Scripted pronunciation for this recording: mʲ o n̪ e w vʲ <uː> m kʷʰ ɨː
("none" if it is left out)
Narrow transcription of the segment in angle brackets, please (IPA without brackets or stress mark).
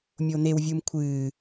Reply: u